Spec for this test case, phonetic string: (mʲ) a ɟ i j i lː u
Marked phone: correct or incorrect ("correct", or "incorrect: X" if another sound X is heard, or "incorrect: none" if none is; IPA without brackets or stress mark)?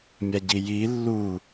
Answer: correct